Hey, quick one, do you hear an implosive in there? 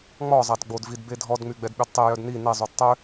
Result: yes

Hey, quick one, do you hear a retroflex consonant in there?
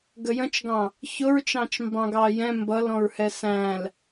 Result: no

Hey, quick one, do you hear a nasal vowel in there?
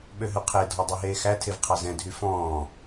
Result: yes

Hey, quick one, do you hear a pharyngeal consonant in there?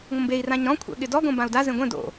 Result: no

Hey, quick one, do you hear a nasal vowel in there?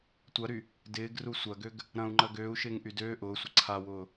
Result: yes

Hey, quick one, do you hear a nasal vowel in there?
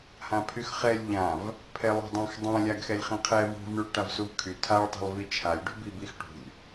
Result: yes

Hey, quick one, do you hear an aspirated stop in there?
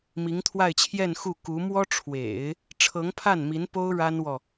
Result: yes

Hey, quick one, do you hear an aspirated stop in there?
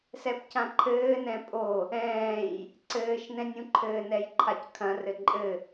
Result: yes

